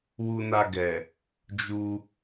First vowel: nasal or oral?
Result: oral